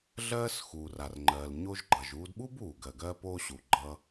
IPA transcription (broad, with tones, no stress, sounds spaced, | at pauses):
ɮ ɜː˥ s x uː˩ r a˩ r ŋ͡ǃ ɜː˩ l ɲ o˧ ʒ ɡ͡ǃ ʌ˩ ʒ uː˧ d ɓ u˥ b uː˩ ɡ ɜ˩ ɡ ɜː˧ p oː˧ ɕ u˩ ɡ͡ǃ ʌ˧